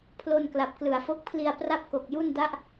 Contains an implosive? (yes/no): no